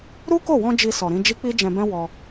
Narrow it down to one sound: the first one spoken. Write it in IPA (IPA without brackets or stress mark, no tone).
ɾ